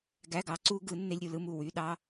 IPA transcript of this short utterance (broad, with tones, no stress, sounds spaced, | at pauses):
ɡ æ˧˥˧ ɡ ɑ˨˥ ǀ u˦˥ ɡ ɯ˨˥ nː e˧˥˧ lʲ ɾʲ u˥˧ l ɯ˧˥˧ m u˥˩ w y˧˥˧ ɗ ɑ˦˥